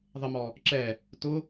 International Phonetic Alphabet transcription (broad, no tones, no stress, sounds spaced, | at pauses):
ðˤ ɪ m ɔ | ǁ ɛ | t ʊ